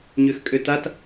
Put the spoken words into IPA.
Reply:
ɲøxkʼøtat

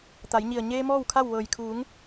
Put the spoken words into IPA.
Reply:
t̪a˩˧jɲi˧˩ə̯ ɲeː˧ mɔː˥˨wkʰa˥˨w ʋɤː˧˩j kʰuː˩˧ŋ

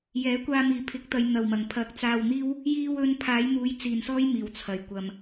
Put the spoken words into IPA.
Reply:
jɛː˨˥kʷaː˧ miː˨pʰɪ˨˥k̚t̪ɐ˨˧j n̪ɐ˨wmɐ˨˩ŋ pʰɐ˨˥k̚t͡saː˧wn̪iː˥w | jiː˧wɵ˧n pʰaː˨˥jn̪uː˨˧jt͡siː˨˩nsɔː˥j miː˨˩wt͡sʰɐ˨˩j kʷɐ˨m

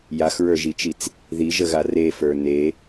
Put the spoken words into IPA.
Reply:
jaxɹə˞ʒit͡ʃit͡s | ðiʒəɣa refə˞ ne

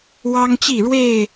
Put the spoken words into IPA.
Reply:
wɑ˦ŋt͡ɕi˥˨ɻwe˥˨ɪ̯

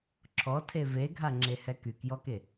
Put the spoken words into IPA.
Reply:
ǁʰɔtʰe veɡʱaŋ͡ǁehɛ kykjɔke

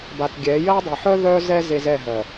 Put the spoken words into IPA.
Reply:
ba˨tɡʲɛ˨˦ jɜ˦ dˤe˨ħœ˦ ðœ˦zɛ˦ ze˦zɛ˦˨ɦɜ˨

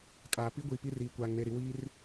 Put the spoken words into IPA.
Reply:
kʼaː˨ pi˦ɡʷiː˨ pi˦riː˨ kʷaː˨ŋne˨ɾi˨ wiː˦r

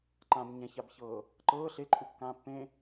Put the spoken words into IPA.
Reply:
ǃãb ɲɛ̃çabçɤː | ǃɤː ɬeǃʼukːãː pːẽ

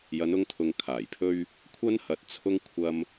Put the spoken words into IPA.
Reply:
jɐ˨˧nʊ˧ŋt̪ʰʊ˨ŋ kʰaː˨˩jpʰɵ˥ɥ | kʷʰɐ˥nhɐ˨˥t̚t͡sʰʊ˥ŋ kʷʰɐ˥m

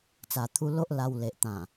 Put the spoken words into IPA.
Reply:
t͡sa˨˩t̪ʰu˧ lo˦ʔla˧w le˨ʔ t̪ã˨˩

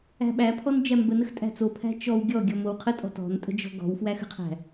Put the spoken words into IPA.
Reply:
æ̤ɓæpʰɔn d͡ʒæmbənəx tʼæ̤t͡sopʰæ̤ t͡ʃɔw ɡʲɔɡʲɔ mowqʰətʼɔ̤ tɔ̤ntʼə̤ d͡ʒɔ̤ɡɔ̤wfwæx ə̤qʰæ̤

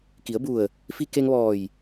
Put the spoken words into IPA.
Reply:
ki˩˧ə̯bu˧˩ə̯ | fi˧ke˧ŋʋɔː˧˩j

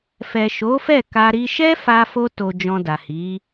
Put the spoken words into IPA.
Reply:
fɛ˨ʃo˨˦ fɛ˦˨ka˧ɾi˧ ʃɛ˦fa˧fo˧ to˧d͡ʒɔ̃˧da˨ hi˨˦

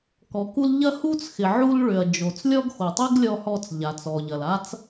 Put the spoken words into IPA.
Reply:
kɔ˩ku˧l ʎɐ˧hu˧t͡sxɪ˩ ʕu˧lɭʏ˩ɐ̯ d͡ʒo˩t͡s lʲɔ˥ɡxo˩tˤi˥ɡ lʲɔ˧hɔ˧t͡s ʎa˩ t͡sɔ˩ʎɐ˩l a˥t͡s

